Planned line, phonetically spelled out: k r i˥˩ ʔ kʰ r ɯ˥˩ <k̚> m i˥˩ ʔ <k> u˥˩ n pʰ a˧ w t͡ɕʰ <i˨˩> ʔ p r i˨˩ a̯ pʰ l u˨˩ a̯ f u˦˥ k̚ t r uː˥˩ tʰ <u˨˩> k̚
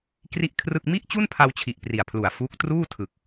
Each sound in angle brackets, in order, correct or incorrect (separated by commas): correct, incorrect, correct, incorrect